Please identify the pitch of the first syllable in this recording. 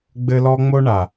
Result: high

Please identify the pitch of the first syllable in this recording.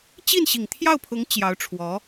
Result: falling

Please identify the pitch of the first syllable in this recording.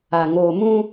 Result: low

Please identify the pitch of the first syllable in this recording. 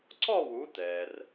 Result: falling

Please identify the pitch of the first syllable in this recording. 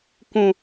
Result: low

